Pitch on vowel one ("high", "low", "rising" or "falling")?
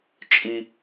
low